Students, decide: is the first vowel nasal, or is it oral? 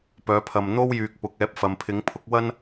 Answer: oral